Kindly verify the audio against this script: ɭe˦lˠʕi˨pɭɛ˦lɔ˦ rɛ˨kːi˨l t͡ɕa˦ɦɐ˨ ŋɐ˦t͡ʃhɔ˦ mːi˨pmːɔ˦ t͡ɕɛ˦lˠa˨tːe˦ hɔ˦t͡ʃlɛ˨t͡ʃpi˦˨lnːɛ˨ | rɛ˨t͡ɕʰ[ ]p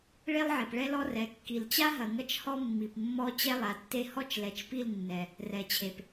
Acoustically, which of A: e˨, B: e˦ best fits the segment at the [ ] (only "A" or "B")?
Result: A